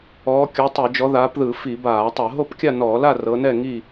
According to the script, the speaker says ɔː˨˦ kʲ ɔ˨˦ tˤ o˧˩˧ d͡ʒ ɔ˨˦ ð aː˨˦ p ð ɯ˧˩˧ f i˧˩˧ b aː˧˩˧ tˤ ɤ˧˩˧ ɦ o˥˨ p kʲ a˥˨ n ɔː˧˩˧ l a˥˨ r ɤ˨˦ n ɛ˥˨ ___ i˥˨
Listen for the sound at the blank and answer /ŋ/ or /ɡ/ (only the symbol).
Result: ŋ